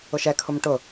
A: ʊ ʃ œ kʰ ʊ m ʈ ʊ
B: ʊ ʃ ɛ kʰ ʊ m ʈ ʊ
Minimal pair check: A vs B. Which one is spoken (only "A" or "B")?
B